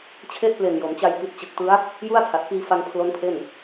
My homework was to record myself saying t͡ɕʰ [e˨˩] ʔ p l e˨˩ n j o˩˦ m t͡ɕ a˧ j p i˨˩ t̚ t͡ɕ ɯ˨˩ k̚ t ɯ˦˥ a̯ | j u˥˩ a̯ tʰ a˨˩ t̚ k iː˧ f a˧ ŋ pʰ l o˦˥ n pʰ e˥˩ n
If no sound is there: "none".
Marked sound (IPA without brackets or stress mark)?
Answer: e˥˩